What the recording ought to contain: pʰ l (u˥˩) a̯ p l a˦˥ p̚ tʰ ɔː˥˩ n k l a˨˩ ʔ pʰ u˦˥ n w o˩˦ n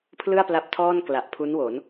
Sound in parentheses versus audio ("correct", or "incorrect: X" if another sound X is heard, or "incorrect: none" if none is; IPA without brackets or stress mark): incorrect: ɯ˥˩